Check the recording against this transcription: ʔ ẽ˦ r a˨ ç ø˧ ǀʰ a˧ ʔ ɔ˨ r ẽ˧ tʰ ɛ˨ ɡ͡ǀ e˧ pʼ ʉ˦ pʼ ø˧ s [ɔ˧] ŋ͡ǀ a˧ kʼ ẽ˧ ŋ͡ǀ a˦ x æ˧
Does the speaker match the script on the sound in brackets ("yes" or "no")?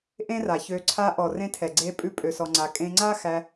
yes